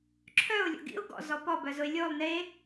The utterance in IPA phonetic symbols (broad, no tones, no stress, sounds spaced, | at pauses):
ǁʰ œ ʊ̯ lʲ o̰ ɡ ḭ ʊ̯ ɡ ɔ̰ z ɔ p ɔ b œ z ʊ ɪ̯ lʲ o lˠ n e